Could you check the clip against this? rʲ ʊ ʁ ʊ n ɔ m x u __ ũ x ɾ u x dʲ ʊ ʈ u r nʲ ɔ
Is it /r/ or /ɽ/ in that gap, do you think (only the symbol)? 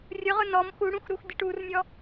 ɽ